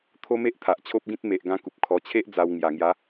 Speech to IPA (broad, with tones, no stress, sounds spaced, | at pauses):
t̪ʰ o˦ m e˦ ʔ t̪ʰ a˨ ʔ t͡ɕʰ o˦ p̚ ɡ ĩ˦ t̚ m e˨ ʔ ɡ ã˧ k u˨ p̚ kʰ ɔ˨˩ t͡ɕʰ e˦ ʔ d͡z a˧ w ŋ j a˨˩ ŋ j a˨˦